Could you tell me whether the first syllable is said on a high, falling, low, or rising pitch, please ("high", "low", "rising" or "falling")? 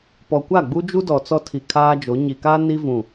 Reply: low